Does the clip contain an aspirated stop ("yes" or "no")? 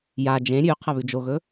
yes